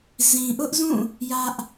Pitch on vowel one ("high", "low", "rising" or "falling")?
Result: low